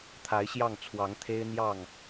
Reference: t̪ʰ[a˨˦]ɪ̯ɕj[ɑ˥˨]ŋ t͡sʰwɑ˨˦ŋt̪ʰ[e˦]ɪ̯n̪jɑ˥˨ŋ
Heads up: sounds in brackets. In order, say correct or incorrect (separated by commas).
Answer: correct, correct, correct